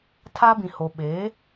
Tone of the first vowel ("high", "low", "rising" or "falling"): high